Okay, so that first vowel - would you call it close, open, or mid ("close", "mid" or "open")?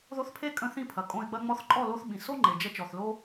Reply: mid